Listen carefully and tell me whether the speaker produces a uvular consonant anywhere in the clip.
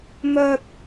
no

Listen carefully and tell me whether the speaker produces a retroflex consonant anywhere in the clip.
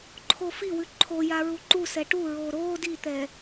yes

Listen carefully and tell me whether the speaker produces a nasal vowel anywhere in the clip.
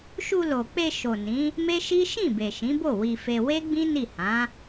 yes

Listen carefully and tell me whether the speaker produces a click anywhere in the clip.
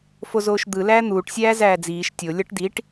no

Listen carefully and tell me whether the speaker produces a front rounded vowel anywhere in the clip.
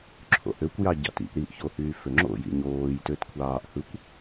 yes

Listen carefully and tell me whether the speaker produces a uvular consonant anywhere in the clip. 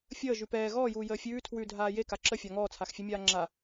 no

